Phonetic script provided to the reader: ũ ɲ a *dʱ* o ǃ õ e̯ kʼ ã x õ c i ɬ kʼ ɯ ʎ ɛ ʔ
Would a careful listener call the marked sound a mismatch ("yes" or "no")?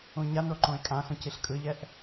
yes